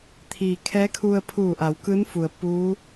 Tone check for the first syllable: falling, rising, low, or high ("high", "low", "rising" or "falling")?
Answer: low